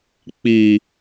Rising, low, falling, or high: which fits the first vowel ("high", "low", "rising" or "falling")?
low